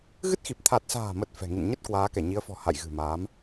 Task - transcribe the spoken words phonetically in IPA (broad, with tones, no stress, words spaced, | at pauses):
ɣɨ˦˥t̚xi˨˩p̚ t̪ʰa˨˩t̚sa̤ː˨˩mə˨˩t̚ fɛ̤˨˩ ŋḭ˧˨nɲə˦˥t̚ kwaː˨˦kɛ˧˩ɲi˨˦ə̯fɔ̤˨˩ ha̰˧˨jɣɨ̤˨˩maː˨˦m